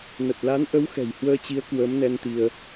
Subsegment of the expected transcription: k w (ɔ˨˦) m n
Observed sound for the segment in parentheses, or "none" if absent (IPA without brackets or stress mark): ə˨˦